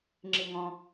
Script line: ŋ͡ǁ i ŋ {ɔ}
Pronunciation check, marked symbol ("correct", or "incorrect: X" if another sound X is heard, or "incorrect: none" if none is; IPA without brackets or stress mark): incorrect: ɔ̃